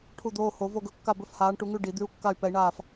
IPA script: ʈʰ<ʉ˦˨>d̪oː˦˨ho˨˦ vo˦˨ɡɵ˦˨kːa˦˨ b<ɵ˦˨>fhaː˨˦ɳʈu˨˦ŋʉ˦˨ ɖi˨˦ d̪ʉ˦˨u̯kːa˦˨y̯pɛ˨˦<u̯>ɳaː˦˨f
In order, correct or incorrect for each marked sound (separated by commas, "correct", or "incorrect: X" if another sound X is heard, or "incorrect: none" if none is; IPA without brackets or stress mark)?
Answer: incorrect: u˦˨, correct, incorrect: i̯